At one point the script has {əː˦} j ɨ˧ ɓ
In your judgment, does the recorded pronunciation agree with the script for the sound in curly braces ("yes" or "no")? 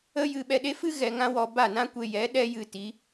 no